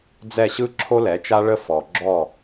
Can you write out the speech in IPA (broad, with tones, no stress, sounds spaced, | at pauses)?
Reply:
d͡z ɛ˦˨ ɕ ɯ˦ ǁʰ o˦ l ɛ˨˦ t͡ʃ a˦ ɭ ə˧ f ɔ˨ ɡ͡ǁ ɔ˦˨